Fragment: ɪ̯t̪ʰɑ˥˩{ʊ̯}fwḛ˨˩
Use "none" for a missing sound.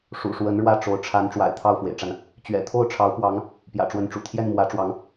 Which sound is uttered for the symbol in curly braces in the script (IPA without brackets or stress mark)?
ʊ̯